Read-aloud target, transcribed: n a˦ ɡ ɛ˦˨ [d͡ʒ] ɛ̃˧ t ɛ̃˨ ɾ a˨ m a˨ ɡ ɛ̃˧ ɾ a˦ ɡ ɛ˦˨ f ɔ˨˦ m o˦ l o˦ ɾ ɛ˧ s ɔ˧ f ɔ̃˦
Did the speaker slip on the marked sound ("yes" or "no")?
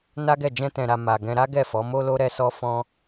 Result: no